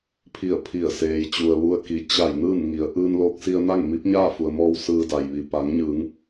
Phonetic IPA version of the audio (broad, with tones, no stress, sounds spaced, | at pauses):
pʰ i˧˩ ə̯ pʰ i˧˩ ə̯ s eː˩ j t͡ɕ u˩ ə̯ ʋ u˧ ə̯ k i˩˧ t͡ɕ a˧˩ j n ɯː˥˨ n ŋ i˩˧ ə̯ ʔ ɯː˧ n l oː˧ k̚ s i˧ ə̯ n a˥˨ ŋ m i˧˥ p̚ ɲ aː˥˨ f u˩ ə̯ m ɔː˧ w s ɯː˧ d a˩ j ʋ i˩ p a˩˧ ŋ ɲ ɯː˩˧ ŋ